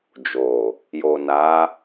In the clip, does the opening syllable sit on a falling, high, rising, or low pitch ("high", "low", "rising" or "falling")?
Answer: low